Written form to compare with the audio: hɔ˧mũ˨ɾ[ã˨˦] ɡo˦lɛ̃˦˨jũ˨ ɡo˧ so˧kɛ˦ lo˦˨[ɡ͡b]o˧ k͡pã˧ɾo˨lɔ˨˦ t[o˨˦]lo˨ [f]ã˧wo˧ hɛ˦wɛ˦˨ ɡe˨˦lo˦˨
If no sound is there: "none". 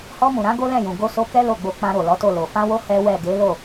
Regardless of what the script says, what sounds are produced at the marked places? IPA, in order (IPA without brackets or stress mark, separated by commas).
ã˨˦, ɡ͡b, o˦˨, f